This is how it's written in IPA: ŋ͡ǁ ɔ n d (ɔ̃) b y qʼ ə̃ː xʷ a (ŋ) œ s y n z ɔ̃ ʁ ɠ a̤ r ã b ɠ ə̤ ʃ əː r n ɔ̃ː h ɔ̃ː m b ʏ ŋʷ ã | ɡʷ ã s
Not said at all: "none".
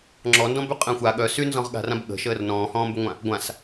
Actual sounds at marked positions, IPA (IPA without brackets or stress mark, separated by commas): ɔ̃, ɠ